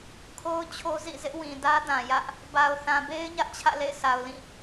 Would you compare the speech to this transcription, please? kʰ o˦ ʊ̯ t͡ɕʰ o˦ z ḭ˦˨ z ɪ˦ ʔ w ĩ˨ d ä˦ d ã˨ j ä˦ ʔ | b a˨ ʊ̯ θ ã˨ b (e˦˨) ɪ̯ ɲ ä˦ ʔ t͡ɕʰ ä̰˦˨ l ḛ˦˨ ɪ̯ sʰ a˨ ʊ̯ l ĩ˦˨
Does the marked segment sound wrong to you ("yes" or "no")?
yes